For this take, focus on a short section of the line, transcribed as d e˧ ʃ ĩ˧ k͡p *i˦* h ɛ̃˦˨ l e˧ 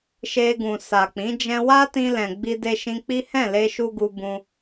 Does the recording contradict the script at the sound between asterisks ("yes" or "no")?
no